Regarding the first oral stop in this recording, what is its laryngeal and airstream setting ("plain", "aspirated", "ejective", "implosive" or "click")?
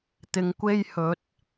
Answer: plain